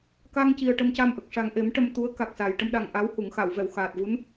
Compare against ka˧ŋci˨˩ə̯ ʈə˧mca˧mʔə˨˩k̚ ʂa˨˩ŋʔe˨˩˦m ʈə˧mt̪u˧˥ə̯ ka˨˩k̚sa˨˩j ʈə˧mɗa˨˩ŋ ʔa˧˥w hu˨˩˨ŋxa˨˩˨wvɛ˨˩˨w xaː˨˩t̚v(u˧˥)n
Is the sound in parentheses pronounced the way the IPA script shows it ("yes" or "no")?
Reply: yes